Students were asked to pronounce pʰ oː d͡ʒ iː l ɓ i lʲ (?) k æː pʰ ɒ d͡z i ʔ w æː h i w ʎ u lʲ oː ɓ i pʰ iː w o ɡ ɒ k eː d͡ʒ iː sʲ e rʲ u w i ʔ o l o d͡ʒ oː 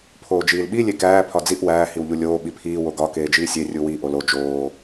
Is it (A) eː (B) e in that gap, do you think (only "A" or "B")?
B